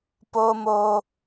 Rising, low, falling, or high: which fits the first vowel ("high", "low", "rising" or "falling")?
high